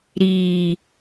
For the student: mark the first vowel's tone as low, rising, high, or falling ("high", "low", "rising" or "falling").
low